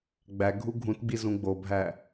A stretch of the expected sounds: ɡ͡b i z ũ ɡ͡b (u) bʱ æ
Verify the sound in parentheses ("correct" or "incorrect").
incorrect